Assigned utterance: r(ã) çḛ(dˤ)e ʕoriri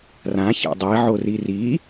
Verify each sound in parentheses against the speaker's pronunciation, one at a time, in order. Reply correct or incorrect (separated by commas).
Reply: correct, correct